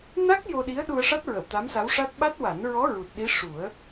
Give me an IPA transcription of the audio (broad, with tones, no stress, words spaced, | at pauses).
na˦˥k̚ jo˧ɗi˧˥ə̯ ɗu˧ə̯ ʂa˦˥t̚ɹə˨˩˨w t̪a˧˥msa˧˥wʂa˦˥t̚ ɓa˦˥t̚ wa˨˩˦nɹɔ˧˥ ɹu˨˩t̚ɗi˧˥ʂu˨˩˦ə̯